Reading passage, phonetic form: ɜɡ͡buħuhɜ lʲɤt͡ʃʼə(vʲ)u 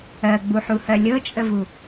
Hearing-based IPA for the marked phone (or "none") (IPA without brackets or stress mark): v